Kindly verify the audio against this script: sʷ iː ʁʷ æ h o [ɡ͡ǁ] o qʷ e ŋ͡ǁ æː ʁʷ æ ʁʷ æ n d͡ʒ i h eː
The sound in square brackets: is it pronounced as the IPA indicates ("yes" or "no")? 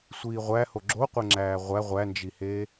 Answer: yes